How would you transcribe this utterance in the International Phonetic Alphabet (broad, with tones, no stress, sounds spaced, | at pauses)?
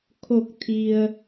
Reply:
kʰ o˧˩ k̚ t̪ʰ i˩ ə̯